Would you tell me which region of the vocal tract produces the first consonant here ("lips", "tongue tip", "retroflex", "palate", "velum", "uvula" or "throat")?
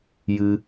palate